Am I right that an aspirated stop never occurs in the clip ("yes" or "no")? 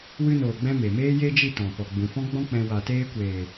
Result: yes